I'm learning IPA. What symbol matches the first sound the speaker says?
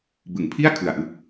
b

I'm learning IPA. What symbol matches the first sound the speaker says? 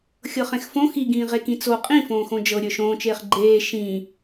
xʲ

